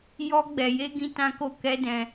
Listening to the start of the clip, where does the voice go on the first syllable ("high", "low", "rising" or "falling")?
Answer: high